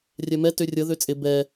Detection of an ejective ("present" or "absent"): present